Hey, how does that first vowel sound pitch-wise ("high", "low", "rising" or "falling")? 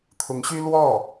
rising